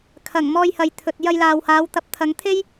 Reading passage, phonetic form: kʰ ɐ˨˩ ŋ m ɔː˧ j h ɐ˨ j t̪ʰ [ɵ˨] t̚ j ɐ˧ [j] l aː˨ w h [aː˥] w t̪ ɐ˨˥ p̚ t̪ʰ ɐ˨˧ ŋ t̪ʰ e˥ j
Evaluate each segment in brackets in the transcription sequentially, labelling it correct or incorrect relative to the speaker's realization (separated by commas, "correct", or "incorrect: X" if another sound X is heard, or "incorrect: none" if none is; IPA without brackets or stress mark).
correct, correct, incorrect: aː˨˧